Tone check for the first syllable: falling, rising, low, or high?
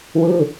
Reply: falling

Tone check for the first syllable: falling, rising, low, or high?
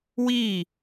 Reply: falling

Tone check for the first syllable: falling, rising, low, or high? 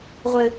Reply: high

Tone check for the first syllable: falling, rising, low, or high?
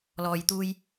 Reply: low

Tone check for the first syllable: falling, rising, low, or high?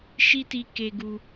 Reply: high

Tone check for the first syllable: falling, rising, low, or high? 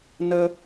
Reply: high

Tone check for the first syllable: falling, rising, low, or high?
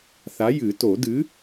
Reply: rising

